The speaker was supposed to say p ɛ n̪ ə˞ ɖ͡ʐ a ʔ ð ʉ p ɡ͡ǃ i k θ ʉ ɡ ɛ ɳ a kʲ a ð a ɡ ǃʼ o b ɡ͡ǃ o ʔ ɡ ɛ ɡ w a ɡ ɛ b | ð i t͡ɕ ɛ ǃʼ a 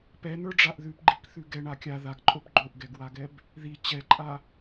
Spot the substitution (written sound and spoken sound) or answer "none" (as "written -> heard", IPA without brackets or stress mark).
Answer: none